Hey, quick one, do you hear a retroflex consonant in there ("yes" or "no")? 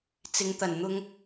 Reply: no